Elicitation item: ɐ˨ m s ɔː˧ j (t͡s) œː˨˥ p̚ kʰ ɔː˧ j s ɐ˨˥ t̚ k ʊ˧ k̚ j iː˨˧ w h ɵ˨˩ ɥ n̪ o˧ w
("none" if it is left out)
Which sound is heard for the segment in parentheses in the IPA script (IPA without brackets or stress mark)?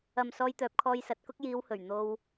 t̪